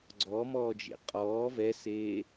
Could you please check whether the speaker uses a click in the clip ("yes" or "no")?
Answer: yes